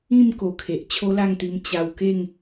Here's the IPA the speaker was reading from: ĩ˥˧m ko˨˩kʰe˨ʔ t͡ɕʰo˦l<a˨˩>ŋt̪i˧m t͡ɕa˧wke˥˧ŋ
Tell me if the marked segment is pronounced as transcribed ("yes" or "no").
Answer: no